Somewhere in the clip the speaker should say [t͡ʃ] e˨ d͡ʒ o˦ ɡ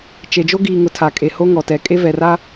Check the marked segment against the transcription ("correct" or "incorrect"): correct